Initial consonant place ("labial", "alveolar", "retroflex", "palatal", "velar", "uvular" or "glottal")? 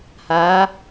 glottal